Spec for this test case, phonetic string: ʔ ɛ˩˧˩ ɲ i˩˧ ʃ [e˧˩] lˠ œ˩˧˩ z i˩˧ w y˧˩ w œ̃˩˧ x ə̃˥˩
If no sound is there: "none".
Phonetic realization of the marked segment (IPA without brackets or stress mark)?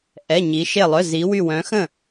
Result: e˧˩